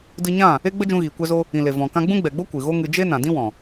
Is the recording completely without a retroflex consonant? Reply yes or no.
yes